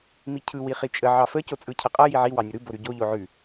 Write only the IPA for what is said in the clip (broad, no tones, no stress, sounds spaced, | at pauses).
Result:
m i cʰ ɯ w i χ i t͡ʃʼ ə ʕ ɑ f ə c o t͡sʼ ɯ cʰ ə qʼ ʌ j i ʕ i w ɑ nʲ ə ɾ ɯ b o ɾ ʉ ɟ o ʎ o ʕ ʉ